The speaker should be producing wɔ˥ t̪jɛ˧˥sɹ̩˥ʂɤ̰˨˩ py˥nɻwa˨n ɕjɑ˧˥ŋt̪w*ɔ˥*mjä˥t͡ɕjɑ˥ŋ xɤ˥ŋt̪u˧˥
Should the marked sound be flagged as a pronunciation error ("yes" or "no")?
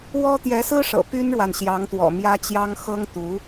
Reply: yes